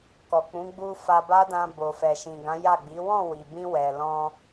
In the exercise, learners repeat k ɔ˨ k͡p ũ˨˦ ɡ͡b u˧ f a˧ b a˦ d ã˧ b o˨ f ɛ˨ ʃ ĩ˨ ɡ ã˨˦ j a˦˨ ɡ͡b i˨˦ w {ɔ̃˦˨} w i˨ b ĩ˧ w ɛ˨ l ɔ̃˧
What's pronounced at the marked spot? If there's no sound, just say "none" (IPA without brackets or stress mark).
ɔ̃˦˨